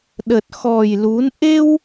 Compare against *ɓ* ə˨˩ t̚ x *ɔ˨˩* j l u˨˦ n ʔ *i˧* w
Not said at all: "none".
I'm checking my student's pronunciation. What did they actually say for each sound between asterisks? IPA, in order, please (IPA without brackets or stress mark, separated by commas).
ɗ, ɔ˨˩, e˧